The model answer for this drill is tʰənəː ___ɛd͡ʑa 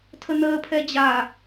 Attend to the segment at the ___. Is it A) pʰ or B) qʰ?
A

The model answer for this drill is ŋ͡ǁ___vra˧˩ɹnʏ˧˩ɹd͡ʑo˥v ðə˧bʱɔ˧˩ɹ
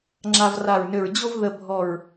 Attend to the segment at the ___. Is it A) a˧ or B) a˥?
A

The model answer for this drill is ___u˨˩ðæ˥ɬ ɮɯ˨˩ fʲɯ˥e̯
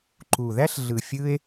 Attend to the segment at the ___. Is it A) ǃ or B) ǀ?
A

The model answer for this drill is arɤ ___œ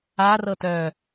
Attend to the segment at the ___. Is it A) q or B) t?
B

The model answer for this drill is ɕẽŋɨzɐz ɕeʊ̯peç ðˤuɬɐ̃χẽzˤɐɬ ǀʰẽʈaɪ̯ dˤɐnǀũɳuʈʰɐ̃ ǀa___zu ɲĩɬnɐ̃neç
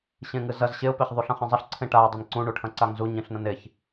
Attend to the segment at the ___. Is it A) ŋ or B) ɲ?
A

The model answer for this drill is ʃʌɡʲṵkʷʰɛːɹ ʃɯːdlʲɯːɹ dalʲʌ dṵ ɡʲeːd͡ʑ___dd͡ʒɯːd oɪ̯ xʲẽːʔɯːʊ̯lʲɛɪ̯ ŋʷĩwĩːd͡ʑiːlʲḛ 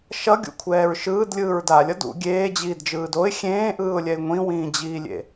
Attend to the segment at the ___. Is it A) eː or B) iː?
B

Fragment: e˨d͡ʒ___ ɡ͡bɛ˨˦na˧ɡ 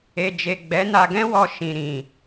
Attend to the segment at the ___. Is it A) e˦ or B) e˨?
B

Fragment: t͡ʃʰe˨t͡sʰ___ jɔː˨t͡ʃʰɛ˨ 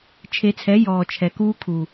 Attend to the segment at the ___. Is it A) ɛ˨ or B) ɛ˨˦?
B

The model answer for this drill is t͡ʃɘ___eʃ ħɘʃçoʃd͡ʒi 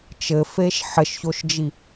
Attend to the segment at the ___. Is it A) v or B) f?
B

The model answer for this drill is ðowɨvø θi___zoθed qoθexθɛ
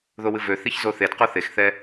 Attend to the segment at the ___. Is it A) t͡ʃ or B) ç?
B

